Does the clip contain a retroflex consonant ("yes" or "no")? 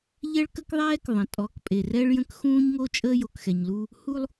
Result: yes